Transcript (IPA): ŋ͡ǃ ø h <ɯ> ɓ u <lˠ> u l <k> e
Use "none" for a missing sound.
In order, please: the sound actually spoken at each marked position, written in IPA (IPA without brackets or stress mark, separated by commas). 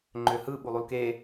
ɯ, lˠ, k